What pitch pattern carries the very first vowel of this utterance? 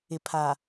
low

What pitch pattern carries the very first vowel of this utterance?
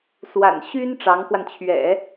low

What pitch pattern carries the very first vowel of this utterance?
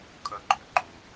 high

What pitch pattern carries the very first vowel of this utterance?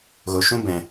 low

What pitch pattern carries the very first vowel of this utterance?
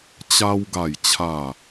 high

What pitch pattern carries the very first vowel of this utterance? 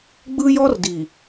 high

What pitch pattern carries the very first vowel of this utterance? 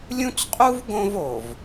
high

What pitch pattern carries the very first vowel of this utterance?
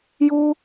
high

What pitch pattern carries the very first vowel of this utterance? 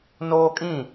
high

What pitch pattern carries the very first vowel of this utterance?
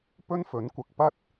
high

